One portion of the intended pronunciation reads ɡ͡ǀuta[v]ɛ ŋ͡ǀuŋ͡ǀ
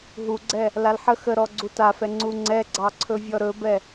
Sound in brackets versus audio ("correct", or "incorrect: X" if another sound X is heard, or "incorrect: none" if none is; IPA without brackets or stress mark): incorrect: f